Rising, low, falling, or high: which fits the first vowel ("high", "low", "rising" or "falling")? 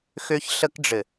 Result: high